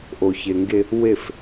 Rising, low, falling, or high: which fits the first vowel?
low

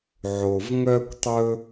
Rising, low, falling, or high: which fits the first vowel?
low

